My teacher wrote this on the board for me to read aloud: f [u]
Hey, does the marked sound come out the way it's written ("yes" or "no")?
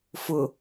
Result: no